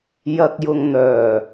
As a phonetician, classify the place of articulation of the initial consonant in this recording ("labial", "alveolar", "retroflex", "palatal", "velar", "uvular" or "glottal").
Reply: palatal